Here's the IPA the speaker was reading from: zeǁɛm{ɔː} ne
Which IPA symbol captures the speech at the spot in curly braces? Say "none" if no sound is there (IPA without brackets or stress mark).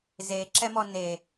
ɔ